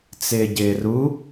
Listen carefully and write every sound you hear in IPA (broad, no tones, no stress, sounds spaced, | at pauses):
t͡s ɪː ɟ ɪː r u